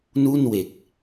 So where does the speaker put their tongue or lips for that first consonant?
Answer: tongue tip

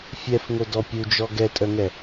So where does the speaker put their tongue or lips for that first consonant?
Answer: lips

